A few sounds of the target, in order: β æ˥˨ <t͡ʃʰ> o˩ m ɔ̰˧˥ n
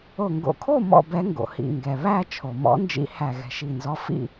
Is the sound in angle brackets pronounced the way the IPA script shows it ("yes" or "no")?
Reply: yes